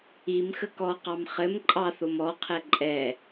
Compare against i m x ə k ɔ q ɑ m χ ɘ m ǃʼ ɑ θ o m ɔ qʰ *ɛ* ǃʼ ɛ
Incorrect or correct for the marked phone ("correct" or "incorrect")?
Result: correct